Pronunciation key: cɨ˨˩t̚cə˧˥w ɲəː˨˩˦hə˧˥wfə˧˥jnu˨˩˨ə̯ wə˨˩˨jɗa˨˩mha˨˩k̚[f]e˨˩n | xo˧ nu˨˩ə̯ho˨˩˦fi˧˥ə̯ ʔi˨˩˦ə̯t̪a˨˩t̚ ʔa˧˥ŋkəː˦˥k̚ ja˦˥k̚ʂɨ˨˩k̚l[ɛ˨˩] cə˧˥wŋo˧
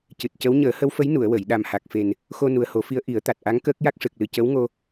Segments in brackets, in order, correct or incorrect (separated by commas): correct, incorrect